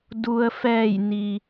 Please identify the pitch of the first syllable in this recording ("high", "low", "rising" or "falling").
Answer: low